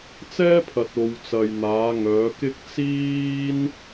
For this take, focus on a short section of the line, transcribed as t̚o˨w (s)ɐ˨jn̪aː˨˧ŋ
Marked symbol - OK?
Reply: no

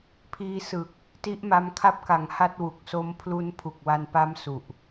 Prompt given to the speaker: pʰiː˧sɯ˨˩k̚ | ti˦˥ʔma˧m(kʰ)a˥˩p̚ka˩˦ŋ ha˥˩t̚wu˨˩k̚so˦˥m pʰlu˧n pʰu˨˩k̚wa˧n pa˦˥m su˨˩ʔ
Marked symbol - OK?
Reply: yes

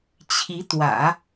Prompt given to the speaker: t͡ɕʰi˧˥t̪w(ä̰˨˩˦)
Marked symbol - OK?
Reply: yes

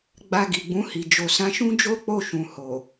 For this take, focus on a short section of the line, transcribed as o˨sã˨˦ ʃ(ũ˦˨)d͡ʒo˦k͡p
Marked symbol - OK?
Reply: no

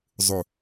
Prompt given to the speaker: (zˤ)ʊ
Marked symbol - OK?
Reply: yes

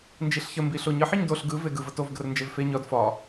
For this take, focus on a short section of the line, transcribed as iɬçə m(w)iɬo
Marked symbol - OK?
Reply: no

